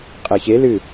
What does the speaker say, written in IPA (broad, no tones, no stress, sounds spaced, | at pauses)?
qʼ ɛ ç e l ɨ